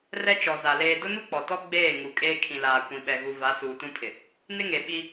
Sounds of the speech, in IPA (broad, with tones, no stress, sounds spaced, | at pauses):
r ɛ˦ t͡ʃ ɔ˨ z a˨ l eː˨ d ʊ˦ n u˦ k͡p ɔ˨ t ɔ˦ ɡ͡b eː˦˨ ŋ u˨ kʼ eː˦ kʰ ĩ˨ l aː˨ kʷ ĩ˨ ɓ ɛ˨ ɣ u˨ v a˨˦ s uː˨ t ũ˦ pʰ ɪ˨ | n ɪ˦ ŋ e˨ ɓ i˦